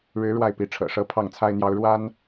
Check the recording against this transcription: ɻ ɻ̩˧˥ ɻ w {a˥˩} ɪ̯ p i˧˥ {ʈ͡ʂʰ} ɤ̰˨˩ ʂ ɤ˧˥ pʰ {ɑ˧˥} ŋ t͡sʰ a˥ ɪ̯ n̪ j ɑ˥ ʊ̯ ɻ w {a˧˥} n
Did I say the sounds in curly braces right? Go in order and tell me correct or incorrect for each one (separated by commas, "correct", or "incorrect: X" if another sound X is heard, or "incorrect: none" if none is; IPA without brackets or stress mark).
correct, correct, incorrect: ɑ˥˩, incorrect: a˥